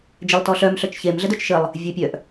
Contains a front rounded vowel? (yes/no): yes